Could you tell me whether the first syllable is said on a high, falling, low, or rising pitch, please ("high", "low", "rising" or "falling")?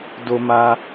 high